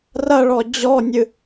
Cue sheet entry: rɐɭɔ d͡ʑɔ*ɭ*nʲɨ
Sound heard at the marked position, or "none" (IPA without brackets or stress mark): none